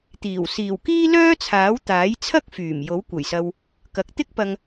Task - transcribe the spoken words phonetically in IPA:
t̪iː˨˩w siː˨˩wkiː˥lœː˥t͡sʰaː˨˥w t̪aː˨˥jt͡sʰɐ˥k̚ fyː˨˩m jo˨˥wkʷɐ˨˩jsɐ˧w | kɐ˨k̚t̪ɪ˥k̚pɐ˧ŋ

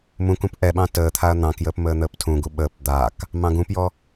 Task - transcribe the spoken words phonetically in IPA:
mũkũp ʔɛɓɑ̃ təːt̪ʰaɐ̯ n̪ɑ̃kjəːp məːn̪əːptʰũɡu ɓəːp d̪ak | mɑ̃ɡũpjɔ

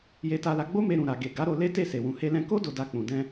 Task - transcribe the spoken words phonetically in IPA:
je˧ta˧ la˧ɡ͡bo˦me˧ ɾũ˨ɾa˨ ɡe˨ ɡa˨˦ɾo˧ le˦te˦˨se˨ wũ˨he˧lɛ̃˧ko˦ do˧da˧k͡pũ˨dɛ̃˧

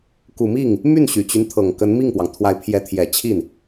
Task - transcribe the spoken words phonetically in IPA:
ku˨˩mi˥˩ŋ | my˥˩n ɕy˨˩t͡ɕy˦nt̪ʰɤ˨˩ŋ kə˧˥nmi˥˩ŋpwɑ˩ŋt̪ʰwa˧˥ɪ̯ pʰjɛ˧˥t̪ʰjɛ˨˩t͡ɕʰi˥˩n

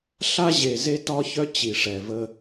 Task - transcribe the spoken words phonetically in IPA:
ɬa˦ʑe˨ze˦ tɒ˦çœ˦ t͡ɕi˨ʂɛ˨və˦

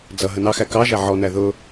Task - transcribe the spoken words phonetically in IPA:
d͡zʌ ɦənɑxæ kɑʒæ ʕɔnæ ðʊ

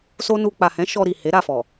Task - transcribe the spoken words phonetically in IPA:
so˦nu˧ k͡pa˨hɛ̃˨˦ ʃɔ˧ɾi˨ he˨˦ɾa˦˨fɔ˨

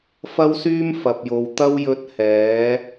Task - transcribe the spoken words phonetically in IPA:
fɐ˧wsyː˧m fɐ˨p̚jo˨w t̪ɐ˧wjɵ˨˥t̚ hɛː˨˥

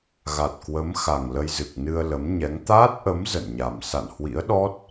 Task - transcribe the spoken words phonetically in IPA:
ɣa˨˩t̚kwə˨˦m xa˨˩ŋlə˧jzɨ˨˩k̚ nɨ˧ə̯ lə˨˦mɲɛ˨˦ŋ t̪aː˦˥t̚ʔə˨˦m zə̰˧˨nɲa˨˩m sa̰˧˨nhwḭ˧˥ə̯ɗɔ˦˥t̚

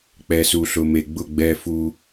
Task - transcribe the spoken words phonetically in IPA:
k͡pɛ˨su˨ɬʊ˨ me˨ɡ͡bʊ˦˨ ɡ͡bɛ˦fu˦

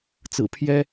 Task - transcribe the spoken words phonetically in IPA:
t͡sɹ̩˨˩pʰjɛ˦

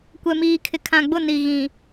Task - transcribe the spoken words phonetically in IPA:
kʷɛ˨miː˨ kʰɪ˨kʰã˨ɡ͡bʊ˦˨ ni˨ɣĩ˨

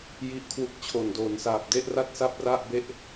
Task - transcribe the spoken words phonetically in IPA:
ji˦˥ʔkʰwu˦˥k̚t͡ɕʰo˨˩n doː˩˦n saː˨˩p̚de˥˩ʔ ra˥˩t̚sa˥˩p̚ra˥˩ʔbe˥˩ʔ

